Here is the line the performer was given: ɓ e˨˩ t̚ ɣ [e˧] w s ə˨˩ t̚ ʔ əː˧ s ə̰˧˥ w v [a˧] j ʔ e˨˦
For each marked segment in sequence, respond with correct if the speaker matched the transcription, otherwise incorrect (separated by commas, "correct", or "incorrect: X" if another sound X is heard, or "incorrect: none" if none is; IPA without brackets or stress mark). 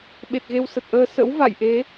correct, incorrect: a̰˧˨